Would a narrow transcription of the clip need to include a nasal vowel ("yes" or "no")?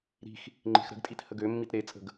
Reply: no